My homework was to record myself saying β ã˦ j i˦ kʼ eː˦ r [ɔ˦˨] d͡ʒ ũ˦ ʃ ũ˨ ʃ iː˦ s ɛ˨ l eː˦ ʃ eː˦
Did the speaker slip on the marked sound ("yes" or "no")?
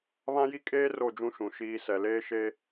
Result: yes